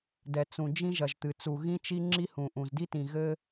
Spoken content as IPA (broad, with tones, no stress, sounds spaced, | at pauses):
d ɛ˩ t͡s ũ˩ d͡ʒ ĩ˥ ʒ ɐ˩ ʒ t̪ ɨ˩ t͡s u˩ ɣ ĩ˥ t͡ʃ i˥ ŋ͡ǁ i˥ h ũ˩ ʔ ũ˩ z d i˥ t ĩ˩ ɣ ɘ˥